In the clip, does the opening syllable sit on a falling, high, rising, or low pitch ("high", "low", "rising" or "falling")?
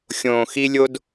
low